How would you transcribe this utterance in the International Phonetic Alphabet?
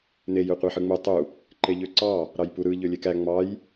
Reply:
n e j ø qʷ e ħ ɯ ŋ͡m u tˤ u | ǃ e ʎ ø ǀ ɑ | ɾ ɑ j p u ɾ ɯ ʎ ø lʲ e k æ ŋ͡m ɑ j

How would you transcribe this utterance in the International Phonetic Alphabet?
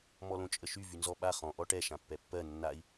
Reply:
m ɔ l õ t͡ʃʼ ə ʃ y v y n z ɔ ɓ a χ ɔ̃ ʔ ɔ ʈ ɛ ʃ ã pː ɛ pː ɜ nː a i̯

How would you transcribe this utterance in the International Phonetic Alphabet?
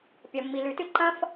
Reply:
pʲ ɐ˩ mː i˩ l ʉ˩ t ɨ˥ ǃ ɐ̃˥ f

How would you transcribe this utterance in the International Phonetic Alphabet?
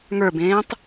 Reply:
ŋ ə˞ b ẽː tˤ

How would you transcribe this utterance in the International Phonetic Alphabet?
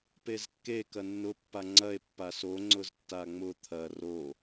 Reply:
p e z kː e k ɐ nː ʊ pː a ŋ͡ǀ ɐ e̯ pː a s o ŋ͡ǀ ʊ z tː a ŋ͡m ʊ t̪ʰ ɐ r o

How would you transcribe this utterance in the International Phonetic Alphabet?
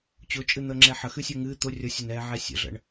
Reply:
t͡ɕ ʊ t͡ʃʼ ɨ n̪ əː ŋ͡ǁ ɛ ħ ə x ɨ sʲ ʊː ŋ ɨː t̪ ʊ rʲ ʌ sʲ ʊ n ɛː ʕ ɛ sʲ ə̰ ɮ ə̰ ɳ

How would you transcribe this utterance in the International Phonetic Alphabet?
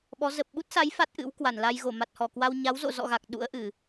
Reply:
ɓ ɔ˨˦ z ə˨˩ p̚ ɓ u˦˥ t̚ s a˨˦ j f a˦˥ t̚ ʔ ɨ̰˧˥ w k w a˧˩ n l a˧ j ɣ o˧˩ m a˨˩ t̚ h ɔ˧˩ k w a˧ w ɲ a˨˦ w z o̰˧˨ z ɔ̰˧˨ ɣ a˨˩ k̚ ɗ ṵ˧˥ ə̯ ʔ ɨ˧˩˨

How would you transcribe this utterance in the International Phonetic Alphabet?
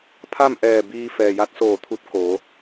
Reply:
pʰ a˥˨ m ʔ ɛː˧˩ b iː˧ f ɛː˩ j a˧˥ t̚ s oː˧˩ t̪ʰ u˧ t̚ k oː˩˧

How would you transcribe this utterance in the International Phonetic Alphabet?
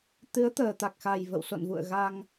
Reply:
t̪ ɨ˨˦ ə̯ t̪ əː˨˩ t̪ a˨˩ k̚ x a˨˩ j v ə̰˧˨ w s o̰˧˨ n v ṵ˧˨ ə̯ ɣ a˧ ŋ

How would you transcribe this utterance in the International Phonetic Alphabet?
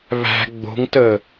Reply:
β æ̤ ɡ͡b o̤ ŋ t əː

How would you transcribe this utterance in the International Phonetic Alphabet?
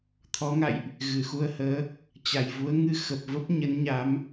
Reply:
t̪ʰ ɔ˨˦ ŋ a̰˧˨ j ʔ | ɣ ɨ˧˩ x u˧ ə̯ h əː˨˦ | t͡ɕ a˨˩ j v u˨˦ ə̯ ŋ ɨ˧ x ə˨˩ p̚ v ə˦˥ p̚ ɲ ə˨˦ n ɲ a˨˦ m

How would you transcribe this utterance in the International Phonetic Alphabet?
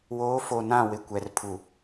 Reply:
w oː˨˦ f o˨ n ã˦˨ w ɪ˨ kʷ ɛ˨ r pʰ u˨

